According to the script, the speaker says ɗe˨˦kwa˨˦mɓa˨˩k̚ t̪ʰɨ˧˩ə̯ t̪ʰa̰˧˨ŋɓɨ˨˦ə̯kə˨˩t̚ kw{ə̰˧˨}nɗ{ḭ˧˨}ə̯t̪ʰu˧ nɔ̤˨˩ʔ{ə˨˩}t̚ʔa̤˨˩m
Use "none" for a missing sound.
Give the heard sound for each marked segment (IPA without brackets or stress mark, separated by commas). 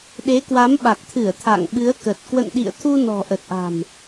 ə̰˧˨, ḭ˧˨, ə˨˩